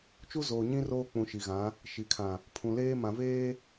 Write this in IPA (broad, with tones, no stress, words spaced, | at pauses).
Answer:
t͡ʃu˦ zoː˨ɲĩ˦ roː˦k͡pũ˨ ʃi˨ɣã˨˦ | ʃi˨kʰã˨ | pʰũ˨leː˦mã˨veː˦